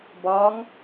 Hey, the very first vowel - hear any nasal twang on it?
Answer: no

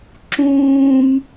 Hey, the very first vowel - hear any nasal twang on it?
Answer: yes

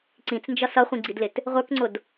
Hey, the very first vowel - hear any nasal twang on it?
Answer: yes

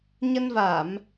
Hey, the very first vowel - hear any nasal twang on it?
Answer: no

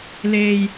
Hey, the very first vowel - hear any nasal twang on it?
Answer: no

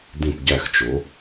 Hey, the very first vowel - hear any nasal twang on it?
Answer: yes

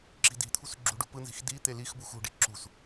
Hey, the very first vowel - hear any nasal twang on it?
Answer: no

